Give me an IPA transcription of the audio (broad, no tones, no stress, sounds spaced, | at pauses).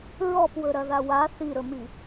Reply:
ɹ ɔ p w ɵ ɾ ɐ ð a w a θ i ɾ ɵ m i